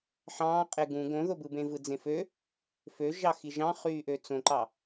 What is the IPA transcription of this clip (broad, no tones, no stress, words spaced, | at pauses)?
ħɑ̃ːqʼe ɡũ ɡõðobɯbẽ vɯd͡zẽfø | føʒɑxi ʒɑ̃χyːʔø t͡sõǃɑ